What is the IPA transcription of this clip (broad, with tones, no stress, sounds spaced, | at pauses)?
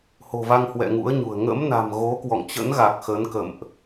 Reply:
h o̤˨˩ v a˧ ŋ h w ɛ̰˧˨ ŋ ṵ˧˥ ə̯ ɲ ṳ˨˩ ə̯ ŋ ə̰˧˥ m n a̤˨˩ m ɣ o˨˦ k w ɔ̰˧˨ ŋ t͡ɕ ə̰˧˥ n ɣ a˨˩ k̚ x ə˨˦ n k ə̰˧˨ m ʔ